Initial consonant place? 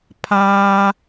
labial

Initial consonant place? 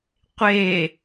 uvular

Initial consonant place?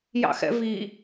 palatal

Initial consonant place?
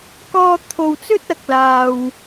velar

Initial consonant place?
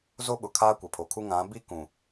alveolar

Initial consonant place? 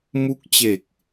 labial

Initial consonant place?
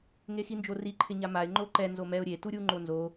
velar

